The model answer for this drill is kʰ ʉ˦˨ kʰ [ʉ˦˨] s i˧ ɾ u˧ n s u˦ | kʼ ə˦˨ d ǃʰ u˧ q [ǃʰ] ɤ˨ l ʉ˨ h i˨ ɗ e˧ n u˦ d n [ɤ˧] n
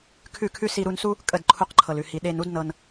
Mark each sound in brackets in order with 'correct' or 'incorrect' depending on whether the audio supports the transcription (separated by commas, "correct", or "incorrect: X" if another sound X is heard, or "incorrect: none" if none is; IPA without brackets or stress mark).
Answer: incorrect: ʉ˦, correct, correct